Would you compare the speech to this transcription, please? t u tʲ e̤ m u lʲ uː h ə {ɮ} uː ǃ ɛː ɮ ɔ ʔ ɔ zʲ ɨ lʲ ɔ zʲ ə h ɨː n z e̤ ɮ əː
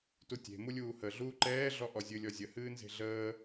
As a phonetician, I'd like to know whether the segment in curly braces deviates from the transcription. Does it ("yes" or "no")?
no